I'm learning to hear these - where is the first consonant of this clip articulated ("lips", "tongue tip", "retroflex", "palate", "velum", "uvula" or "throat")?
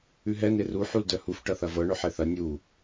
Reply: throat